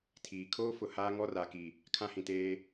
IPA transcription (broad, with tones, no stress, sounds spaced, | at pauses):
tʰ iː˨ kʰ oː˦ f ʊ˨ h aː˦ ŋ ɔ˦ r a˨ k i˨ | kʰ ã˦ h ĩ˨ t eː˦